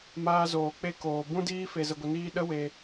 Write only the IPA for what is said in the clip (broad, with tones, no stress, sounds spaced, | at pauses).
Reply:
m aː˧ z oː˨ k͡p e˦˨ k oː˨ b ũ˦ d iː˦ f e˧ z ə˧ ɡʷ ə˧ n iː˦ ɗ ə˦ w e˧